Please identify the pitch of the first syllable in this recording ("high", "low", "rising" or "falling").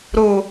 low